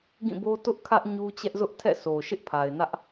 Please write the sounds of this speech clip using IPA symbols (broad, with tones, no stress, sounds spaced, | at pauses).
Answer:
ɡ ĩ˦˨ b o˦ t ʊ˦ ʔ kʰ ä˦ ʔ ɲ u˦ t͡ɕ ɛ˦ ʔ z ʊ˦ ʔ tʰ ɛ̰˦˨ s o˨ ʃ ɪ˦ ʔ pʰ a˨ ɪ̯ n ä˦ ʔ